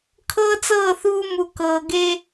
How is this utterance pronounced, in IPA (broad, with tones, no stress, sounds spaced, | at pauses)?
kʰ ɤː˦ t͡s ɤː˦˨ θ uː˦ m u˨ k ɤː˨ ɡ eː˦